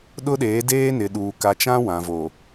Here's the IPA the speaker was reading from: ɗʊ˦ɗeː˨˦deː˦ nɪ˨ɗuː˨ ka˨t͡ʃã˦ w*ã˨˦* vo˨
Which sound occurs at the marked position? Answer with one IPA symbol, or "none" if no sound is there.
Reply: ã˨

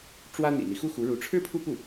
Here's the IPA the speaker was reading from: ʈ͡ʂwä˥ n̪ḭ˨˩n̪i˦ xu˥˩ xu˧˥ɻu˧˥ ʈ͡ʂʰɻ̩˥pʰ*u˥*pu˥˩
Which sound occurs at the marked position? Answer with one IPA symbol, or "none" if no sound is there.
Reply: u˥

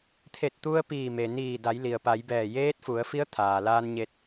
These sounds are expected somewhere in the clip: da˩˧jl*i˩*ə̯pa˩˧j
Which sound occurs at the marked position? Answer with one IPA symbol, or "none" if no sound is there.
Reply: i˩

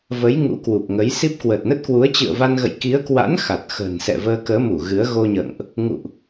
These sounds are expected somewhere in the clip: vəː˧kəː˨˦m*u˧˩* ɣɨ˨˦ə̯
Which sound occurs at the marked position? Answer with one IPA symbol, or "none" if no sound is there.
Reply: u˧˩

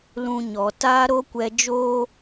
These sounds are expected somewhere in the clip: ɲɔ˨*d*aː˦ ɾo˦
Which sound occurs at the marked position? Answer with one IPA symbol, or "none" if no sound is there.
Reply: t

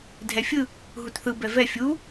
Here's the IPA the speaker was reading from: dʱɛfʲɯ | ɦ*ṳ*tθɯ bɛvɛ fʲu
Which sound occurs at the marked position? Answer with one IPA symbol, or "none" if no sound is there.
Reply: u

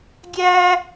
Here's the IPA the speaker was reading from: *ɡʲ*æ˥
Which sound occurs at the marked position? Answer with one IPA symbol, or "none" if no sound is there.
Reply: ɡʲ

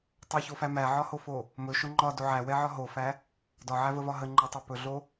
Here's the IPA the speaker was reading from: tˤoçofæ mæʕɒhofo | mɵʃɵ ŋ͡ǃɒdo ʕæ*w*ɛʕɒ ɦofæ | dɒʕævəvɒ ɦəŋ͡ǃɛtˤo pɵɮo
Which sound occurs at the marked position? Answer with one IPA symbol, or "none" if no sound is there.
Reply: w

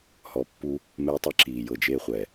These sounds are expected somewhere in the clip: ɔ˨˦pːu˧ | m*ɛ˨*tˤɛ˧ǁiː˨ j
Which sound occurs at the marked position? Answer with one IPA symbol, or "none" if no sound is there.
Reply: ɛ˧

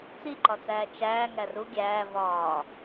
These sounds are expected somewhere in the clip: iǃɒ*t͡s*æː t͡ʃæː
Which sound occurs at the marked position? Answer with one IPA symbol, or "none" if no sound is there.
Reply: t͡s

